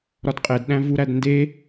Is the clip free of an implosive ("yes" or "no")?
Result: no